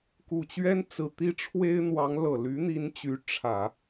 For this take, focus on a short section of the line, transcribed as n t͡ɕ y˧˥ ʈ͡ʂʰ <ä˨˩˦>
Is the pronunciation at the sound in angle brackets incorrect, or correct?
correct